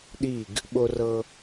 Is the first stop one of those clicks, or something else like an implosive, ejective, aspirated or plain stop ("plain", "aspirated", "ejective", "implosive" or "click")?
implosive